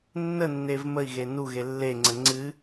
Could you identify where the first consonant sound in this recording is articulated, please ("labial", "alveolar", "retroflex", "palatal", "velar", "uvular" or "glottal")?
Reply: alveolar